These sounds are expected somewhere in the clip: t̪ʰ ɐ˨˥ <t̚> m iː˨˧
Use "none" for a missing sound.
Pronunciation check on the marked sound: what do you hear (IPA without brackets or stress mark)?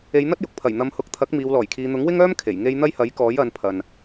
k̚